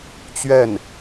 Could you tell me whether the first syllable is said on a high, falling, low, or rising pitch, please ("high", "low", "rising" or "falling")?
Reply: falling